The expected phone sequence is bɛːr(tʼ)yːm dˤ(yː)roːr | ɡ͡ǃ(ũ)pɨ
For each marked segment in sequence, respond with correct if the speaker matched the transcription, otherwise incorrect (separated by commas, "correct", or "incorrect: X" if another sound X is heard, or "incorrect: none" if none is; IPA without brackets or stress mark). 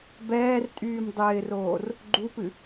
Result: correct, incorrect: ɪː, incorrect: u